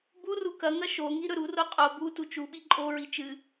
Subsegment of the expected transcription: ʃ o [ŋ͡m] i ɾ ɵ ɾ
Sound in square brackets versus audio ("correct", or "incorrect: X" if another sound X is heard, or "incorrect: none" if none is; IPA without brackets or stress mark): incorrect: ŋ